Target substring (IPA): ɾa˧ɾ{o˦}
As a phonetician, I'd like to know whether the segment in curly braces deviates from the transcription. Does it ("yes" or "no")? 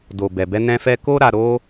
no